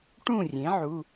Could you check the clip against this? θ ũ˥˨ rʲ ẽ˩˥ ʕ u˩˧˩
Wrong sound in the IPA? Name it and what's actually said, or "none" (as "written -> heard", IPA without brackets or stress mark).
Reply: θ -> ʈ